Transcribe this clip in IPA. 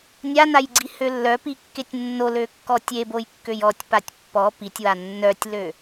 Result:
nʲ a n a j ɡ͡ǀ i h ø lː œ p i kː e tʲ nː o l ø kː ɔ tʲ e b o j kː ø j ɔ tʲ p a tʲ pː ɔ p i tʲ w a nː œ tʲ l ø

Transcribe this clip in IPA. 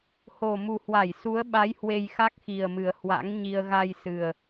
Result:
h o˨˩ m u˨˩ h w a˧˩ j s u˨˦ ə̯ ɓ a˨˦ j h w e˧ j x a˦˥ k̚ x i˨˩ ə̯ m ɨ˨˩ ə̯ h w a̰˧˥ ŋ ɲ i˧ ə̯ ɣ a˧ j s ɨ˨˩ ə̯

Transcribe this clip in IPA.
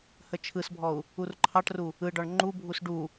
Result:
h ə t͡ʃʰ ɯ s bʱ ɔ u̯ | u r ǃʰ ɑ ʈ r u | ɯ ɖ ɔ ɳ ŋ͡ǃ u bʱ u s ɖ u

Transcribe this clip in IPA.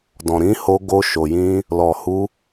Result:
d ɔ̃˨ ɾ ĩ˨˦ h o˧ ɡ o˧ ʃ o˨ j ĩ˧ | l ɔ˨ h u˧

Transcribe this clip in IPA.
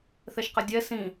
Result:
θ ɛ ʃ q ə dʲ ɛ s ĩ

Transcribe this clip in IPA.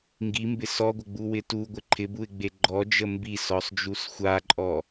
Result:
ŋ ɡ i m b ɪ s ɔ ɡʷ ə ɡ͡b u w ɪ t u ɡʷ ɪ ǃʰ ɪ b u ɪ̯ ɡ͡b e ɡ͡ǃ ɔ d͡ʒ ə m b i s ɔ sˤ d͡ʒ u s xʷ a ǃʼ ɔ

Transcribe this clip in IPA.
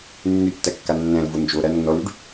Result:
nː y tː æ kː a nː æ̃ l v o n d͡ʒ o ɾ æ nː ɔ l y ɖ

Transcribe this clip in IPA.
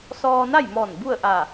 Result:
s ɔː˧ n a˥˨ j m ɔː˧˩ n b u˥˨ ə̯ ʔ a˧˩

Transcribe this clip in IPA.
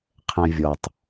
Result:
qʰ ɛ̃ vʲ ɔ tˤ

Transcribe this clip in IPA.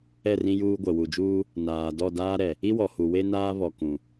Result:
ɛ˦˨ r ĩ˦ j uː˦ ɡʷ ɛ˨ w u˨ d͡ʒ uː˦ | n aː˨ d ɔ˦˨ d aː˦ ɾ ɛ˨ | i˦ w ɔ˨ h u˨ w e˦ n aː˦ β ɔ˨ k ũ˨

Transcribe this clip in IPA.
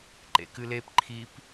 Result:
ǃ ḛ k ɨ l e p ǃʰ i p

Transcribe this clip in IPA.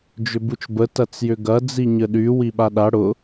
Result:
d͡ʒ ʏ b u t͡ʃ b ə t ɐ t͡s j ʏ ɡ ɐ d͡z i ɲ ə ɗ y w i ɓ a ɗ a ɽ ʊ

